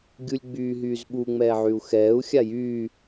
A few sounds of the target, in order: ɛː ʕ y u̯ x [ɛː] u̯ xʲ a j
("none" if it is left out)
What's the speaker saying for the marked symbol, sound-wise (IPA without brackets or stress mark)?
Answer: ɛː